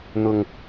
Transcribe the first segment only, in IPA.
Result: n̪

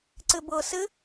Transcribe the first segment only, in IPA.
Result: ǀ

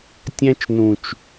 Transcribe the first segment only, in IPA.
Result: tʲ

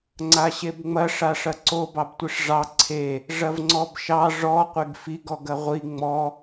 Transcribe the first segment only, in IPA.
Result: ŋ͡ǀ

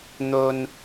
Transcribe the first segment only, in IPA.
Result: n̪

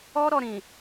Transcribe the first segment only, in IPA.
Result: ɔ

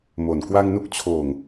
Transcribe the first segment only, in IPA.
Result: m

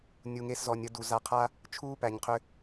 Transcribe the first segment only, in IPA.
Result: nʲ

